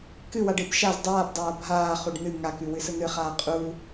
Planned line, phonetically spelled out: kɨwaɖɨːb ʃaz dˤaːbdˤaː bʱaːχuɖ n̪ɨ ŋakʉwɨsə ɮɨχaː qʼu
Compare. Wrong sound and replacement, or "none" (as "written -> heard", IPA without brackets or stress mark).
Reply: ɮ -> n̪